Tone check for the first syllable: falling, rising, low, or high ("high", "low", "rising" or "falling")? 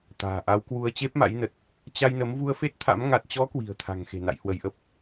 low